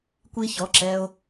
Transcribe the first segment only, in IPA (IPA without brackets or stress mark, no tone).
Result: kʷ